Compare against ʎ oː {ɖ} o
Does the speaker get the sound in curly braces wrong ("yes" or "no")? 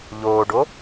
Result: no